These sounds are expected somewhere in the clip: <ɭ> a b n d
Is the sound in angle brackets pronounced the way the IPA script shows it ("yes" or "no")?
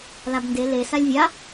no